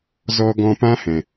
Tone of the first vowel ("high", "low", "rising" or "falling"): low